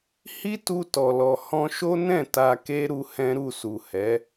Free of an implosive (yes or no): yes